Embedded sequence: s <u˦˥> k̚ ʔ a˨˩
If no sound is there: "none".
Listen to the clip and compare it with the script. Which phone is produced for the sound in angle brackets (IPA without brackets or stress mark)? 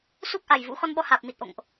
u˦˥